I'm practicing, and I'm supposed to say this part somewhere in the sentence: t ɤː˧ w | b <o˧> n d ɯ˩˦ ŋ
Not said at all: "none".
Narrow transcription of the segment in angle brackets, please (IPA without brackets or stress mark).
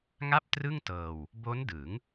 o˦˥